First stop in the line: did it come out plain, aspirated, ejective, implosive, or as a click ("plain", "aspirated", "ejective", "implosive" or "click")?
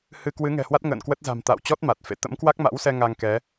plain